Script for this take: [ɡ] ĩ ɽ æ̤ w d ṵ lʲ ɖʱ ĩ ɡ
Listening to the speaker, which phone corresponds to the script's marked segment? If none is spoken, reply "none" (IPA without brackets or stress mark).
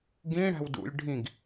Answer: ɡ